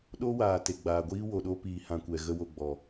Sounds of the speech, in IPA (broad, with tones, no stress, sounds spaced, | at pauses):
ɗ o˦ w aː˨ t e˨ ɡ͡b aː˨ ɡʷ iː˦ w o˨ ɗ o˧ p iː˨ h ã˨ kʷ ɛ˨ ɣ ə˧ w o˨ ɡ͡b ɔ˨